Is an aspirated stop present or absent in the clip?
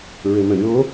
absent